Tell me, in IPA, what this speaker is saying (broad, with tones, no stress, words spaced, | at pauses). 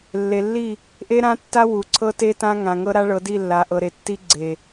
lːe˨lːi˦˨ | ʔe˦ɾã˦tːa˦ wu˨ǀʰɤ˦te˦ tã˦ŋã˨ ŋɤ˦ɾa˦ɭɤ˨˦di˦˨ lːa˨ʔɤ˨ ɾe˨tːi˦ɡ͡ǀe˨